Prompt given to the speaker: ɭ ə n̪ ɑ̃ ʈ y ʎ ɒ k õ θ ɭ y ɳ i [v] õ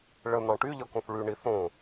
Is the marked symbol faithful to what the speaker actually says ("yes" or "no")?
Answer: no